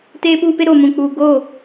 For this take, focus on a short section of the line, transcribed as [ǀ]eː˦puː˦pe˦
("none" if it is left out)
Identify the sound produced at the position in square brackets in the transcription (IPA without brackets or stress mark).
t